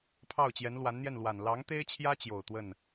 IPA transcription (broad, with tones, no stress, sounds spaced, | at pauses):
pʰ ɑ˥˩ ʊ̯ t͡ɕ j ɛ˧˥ n l w a˧˥ n n̪ j ɛ˥˩ n l w a˨˩ n l ɑ˧˥ ŋ t̪ e˥ ɪ̯ t͡ɕʰ j ä˥ t͡ɕ j o˨˩ ʊ̯ t̪ w ə˥˩ n